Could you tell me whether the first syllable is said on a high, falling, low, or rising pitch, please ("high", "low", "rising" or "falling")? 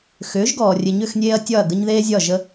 rising